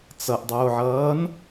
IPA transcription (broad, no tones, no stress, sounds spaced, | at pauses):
t͡s ʌ ʔ dˤ oː ʕ ʌː n